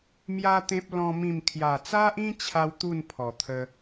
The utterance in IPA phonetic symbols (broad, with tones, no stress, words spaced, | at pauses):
mja˦t̪ẽ˦p̚ lɔ̃˦mĩ˥˧m kʰja˨˩t͡sa˦ʔĩ˦t͡ɕʰa˧w t̪u˥˧npʰɔ˨˩t̪ʰə˧